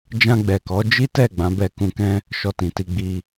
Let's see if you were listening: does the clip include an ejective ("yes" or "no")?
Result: no